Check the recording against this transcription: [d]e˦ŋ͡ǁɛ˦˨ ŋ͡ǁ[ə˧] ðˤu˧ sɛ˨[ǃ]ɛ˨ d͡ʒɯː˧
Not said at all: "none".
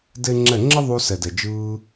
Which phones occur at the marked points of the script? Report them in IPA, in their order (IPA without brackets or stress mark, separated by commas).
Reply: d, ə˦, d